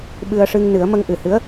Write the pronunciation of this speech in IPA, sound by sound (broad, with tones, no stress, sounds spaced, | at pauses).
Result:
ɓ ɨ˧ ə̯ ʂ ɨ˧ ŋ n ɨ˨˩˦ ə̯ m ə˧ ŋ ʔ ɨ˨˩ h ɨ˧˥ ə̯